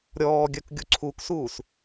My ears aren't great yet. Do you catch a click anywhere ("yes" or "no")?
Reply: yes